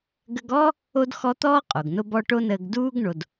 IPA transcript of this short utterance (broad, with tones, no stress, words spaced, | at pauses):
ɡə˧ɡɔ˥ | o˥dxɔ˥ t̪ɔː˥qʼo˩ɡ no˧bɔ˧ ʈo˥nəː˧ɡ duː˥ɡ ɳo˩d